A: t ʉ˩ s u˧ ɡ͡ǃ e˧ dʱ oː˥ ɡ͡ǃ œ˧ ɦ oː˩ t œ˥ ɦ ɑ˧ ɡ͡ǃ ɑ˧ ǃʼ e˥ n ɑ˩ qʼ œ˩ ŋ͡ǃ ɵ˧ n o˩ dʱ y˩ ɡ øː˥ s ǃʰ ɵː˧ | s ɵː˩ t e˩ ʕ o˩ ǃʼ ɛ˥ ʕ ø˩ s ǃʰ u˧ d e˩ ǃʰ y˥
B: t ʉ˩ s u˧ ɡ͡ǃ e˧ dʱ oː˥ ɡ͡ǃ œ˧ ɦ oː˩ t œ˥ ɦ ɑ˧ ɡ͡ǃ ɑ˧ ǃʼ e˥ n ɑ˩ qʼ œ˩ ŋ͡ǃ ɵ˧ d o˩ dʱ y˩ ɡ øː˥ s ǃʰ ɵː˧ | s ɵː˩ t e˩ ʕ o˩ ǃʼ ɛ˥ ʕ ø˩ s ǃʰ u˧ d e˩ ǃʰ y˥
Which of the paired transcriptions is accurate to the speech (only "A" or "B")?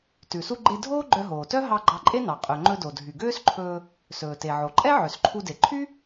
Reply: B